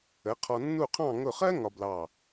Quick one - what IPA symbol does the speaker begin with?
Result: ə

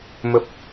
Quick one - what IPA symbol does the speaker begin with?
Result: m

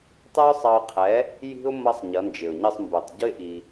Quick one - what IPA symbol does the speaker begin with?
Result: tˤ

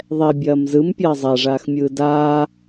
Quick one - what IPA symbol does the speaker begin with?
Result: ðˤ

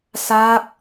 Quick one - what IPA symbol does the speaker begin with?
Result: s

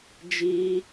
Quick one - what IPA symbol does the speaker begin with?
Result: d͡ʒ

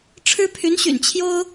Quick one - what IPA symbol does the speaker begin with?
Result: ʈ͡ʂʰ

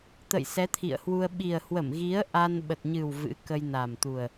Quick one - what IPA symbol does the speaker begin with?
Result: t̪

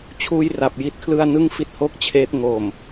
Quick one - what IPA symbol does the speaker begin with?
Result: t͡ɕʰ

